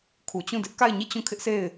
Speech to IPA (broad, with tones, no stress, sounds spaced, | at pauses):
kʰ u˨ t͡ɕ ũ˦˨ d ɪ˦ ʔ k a˦˨ ɪ̯ ɲ i˦˨ t͡ɕ ũ˦˨ kʰ ɪ˦ ʔ sʰ e˦˨ ɪ̯